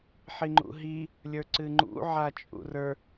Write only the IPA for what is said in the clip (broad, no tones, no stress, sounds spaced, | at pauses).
ħ i ŋ͡ǃ ṵ ɦ i | lʲ ə˞ ǀ ɨ ŋ͡ǃ ṵ ʕ a t͡ʃʼ ṵ r ə˞